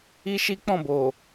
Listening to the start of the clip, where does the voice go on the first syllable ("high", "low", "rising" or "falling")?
high